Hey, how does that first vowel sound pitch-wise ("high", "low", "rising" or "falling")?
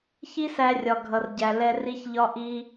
high